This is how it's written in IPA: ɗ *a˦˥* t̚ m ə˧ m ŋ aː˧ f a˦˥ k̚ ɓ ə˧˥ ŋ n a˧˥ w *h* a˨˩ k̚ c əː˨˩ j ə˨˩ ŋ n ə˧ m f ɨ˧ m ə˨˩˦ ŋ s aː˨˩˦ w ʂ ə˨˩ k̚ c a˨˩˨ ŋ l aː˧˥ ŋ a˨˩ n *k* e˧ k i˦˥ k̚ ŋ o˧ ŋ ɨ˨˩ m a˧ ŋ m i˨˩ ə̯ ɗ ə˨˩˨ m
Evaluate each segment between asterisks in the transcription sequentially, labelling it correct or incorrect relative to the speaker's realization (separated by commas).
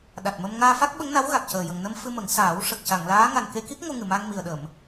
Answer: incorrect, incorrect, correct